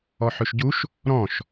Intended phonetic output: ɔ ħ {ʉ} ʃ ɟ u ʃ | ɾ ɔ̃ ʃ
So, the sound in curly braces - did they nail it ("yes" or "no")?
yes